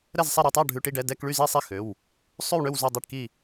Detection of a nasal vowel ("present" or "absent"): absent